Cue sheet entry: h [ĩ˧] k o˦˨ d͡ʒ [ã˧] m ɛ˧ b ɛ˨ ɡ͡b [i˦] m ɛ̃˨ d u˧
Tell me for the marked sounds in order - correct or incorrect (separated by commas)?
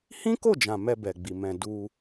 incorrect, incorrect, incorrect